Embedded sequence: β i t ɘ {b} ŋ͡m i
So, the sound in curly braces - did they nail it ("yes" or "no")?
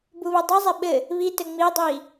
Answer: no